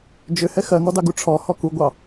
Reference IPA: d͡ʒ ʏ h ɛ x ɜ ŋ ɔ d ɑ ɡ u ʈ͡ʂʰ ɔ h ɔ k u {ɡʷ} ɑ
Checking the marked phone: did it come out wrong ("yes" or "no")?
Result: no